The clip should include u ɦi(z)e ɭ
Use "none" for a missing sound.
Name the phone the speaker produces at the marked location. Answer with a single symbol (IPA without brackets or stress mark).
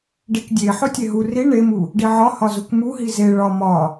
z